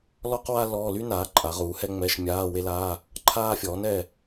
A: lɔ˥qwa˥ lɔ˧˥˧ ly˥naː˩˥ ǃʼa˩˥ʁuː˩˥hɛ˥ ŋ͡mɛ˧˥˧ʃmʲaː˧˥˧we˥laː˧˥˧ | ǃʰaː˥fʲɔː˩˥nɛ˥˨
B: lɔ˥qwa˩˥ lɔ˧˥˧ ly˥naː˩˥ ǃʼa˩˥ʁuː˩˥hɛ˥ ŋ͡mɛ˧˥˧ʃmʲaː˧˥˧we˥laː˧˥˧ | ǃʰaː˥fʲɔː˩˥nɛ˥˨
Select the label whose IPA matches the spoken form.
A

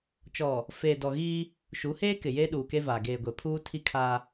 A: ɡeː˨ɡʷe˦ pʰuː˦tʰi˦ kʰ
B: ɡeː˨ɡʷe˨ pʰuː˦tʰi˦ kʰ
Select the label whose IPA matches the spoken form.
B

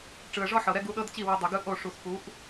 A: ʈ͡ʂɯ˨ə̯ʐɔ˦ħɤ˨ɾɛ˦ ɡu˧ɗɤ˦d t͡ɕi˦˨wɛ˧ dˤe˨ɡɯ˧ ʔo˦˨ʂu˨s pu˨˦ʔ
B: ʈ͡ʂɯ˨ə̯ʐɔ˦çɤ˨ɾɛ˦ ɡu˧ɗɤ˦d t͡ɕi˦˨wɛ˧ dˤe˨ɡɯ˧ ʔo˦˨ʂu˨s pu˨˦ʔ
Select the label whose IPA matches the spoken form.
A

